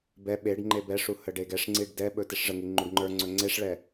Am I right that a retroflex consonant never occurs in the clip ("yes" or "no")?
no